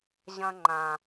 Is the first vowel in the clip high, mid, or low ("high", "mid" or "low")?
low